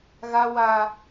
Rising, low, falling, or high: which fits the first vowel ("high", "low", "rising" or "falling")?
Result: high